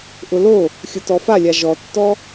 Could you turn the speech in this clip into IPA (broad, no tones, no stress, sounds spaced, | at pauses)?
ʔ ʊ l o | xʲ ʊ t ɔ f a lʲ a ʒ ɔ tː ɔ